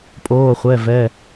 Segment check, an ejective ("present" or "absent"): present